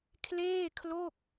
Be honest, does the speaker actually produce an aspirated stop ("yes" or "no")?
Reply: yes